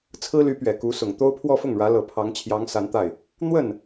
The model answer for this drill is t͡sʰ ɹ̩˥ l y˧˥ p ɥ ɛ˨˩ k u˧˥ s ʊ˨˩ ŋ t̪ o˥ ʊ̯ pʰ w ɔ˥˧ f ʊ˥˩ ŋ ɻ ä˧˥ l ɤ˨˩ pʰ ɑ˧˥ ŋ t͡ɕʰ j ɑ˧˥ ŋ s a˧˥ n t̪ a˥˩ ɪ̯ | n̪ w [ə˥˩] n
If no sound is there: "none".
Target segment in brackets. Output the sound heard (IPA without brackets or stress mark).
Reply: ə˥˩